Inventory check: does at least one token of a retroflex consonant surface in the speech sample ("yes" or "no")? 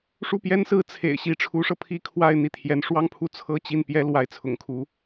yes